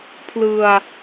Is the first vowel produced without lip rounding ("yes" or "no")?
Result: yes